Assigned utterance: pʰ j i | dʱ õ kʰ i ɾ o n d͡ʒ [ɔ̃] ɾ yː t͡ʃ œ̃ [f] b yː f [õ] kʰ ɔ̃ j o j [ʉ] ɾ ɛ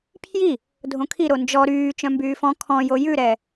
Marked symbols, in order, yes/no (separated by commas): no, no, no, yes